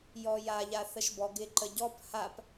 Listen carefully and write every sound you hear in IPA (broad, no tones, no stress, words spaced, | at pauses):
jɔjaʎa θəʃbɔɡɪ ǃəɟɔp hap